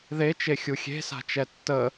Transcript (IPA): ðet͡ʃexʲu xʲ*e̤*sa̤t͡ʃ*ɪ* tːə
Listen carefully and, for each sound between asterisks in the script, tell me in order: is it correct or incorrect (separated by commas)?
correct, incorrect